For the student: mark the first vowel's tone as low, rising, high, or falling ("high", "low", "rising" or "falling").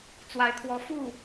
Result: rising